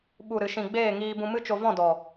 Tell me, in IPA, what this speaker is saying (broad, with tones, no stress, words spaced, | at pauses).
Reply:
ɓu˨ɾɨ˨ʃĩ˨ ɡ͡beː˦˨ŋiː˧ bũ˧mɨ˦t͡ʃo˧ vɔ̃˦˨dɔ˨